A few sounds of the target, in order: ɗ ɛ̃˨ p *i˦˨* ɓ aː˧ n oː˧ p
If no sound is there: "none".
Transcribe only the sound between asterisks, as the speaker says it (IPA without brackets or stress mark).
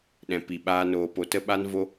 i˨